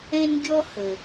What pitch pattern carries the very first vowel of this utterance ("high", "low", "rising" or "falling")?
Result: high